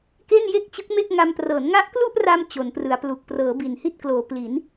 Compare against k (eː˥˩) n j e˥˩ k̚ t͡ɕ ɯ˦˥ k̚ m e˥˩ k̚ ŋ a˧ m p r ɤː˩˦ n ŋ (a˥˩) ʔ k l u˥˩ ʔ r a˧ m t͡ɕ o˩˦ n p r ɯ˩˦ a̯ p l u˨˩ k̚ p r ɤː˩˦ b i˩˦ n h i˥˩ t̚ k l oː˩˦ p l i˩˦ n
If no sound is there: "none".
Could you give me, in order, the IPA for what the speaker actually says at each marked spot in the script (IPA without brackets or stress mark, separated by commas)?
e˥˩, a˦˥